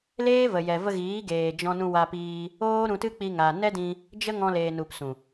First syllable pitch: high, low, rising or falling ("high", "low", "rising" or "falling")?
high